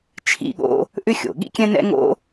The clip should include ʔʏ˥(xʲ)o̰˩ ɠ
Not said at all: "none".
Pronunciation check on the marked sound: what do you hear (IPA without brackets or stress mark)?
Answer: xʲ